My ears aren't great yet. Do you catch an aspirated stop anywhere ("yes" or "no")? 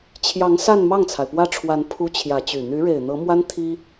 yes